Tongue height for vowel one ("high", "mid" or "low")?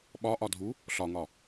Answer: low